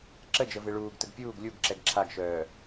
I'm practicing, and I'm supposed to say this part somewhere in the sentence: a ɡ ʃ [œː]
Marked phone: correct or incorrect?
correct